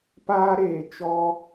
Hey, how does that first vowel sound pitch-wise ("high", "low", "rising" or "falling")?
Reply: high